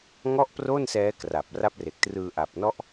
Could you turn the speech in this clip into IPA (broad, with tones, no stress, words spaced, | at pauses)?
ŋɔ˥˩ʔpro˥˩nsɛː˦˥kra˨˩p̚ ra˦˥p̚re˨˩k̚trɯː˧ ʔa˨˩p̚nɔ˦˥ʔ